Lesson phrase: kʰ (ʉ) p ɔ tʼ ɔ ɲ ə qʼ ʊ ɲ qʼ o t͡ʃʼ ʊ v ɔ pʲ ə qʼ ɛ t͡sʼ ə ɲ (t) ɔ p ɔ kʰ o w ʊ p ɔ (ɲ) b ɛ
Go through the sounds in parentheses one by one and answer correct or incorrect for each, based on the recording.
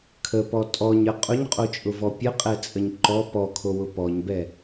incorrect, incorrect, correct

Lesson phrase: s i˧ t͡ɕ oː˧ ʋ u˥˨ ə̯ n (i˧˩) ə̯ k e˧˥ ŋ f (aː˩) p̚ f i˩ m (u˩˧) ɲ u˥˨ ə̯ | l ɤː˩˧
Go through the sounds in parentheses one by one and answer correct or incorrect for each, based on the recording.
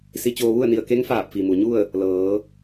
correct, incorrect, incorrect

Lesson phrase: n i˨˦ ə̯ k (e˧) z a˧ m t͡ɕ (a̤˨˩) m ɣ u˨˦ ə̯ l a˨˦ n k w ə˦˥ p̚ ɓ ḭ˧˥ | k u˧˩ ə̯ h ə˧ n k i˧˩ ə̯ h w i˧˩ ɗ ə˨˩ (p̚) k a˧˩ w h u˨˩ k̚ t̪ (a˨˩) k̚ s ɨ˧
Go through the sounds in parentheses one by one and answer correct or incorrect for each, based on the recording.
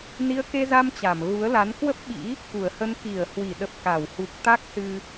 correct, incorrect, correct, incorrect

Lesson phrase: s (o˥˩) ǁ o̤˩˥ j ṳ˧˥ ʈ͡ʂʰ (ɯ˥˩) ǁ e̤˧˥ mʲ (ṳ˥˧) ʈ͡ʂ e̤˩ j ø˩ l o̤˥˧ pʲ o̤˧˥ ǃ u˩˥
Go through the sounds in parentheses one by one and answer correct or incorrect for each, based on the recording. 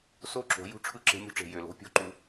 correct, correct, incorrect

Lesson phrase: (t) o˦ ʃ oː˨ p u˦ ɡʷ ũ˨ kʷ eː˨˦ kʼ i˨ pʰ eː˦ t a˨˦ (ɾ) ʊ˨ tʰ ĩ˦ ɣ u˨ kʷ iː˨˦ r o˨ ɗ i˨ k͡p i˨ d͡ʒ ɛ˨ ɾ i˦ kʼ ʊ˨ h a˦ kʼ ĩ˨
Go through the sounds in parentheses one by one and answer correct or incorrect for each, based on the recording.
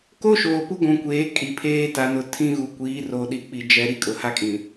incorrect, incorrect

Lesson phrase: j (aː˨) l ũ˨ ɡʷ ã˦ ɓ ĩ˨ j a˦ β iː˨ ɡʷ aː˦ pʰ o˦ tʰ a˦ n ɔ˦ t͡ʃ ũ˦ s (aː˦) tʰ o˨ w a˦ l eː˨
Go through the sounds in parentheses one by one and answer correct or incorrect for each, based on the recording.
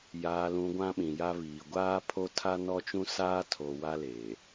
correct, correct

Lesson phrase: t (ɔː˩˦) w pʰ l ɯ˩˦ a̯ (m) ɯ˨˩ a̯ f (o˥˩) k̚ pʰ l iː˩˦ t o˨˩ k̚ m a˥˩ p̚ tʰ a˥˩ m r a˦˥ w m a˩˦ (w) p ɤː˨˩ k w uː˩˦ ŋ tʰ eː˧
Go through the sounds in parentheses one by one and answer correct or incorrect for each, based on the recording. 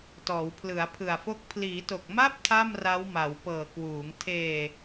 correct, incorrect, incorrect, correct

